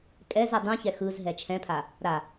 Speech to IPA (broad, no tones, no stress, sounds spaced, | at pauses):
kʼ ɛ z ɛ dˤ ũ ç ɛ x ɯ z ɦ ɛ t͡ʃʰ ɛ̃ pʰ a | ɾ a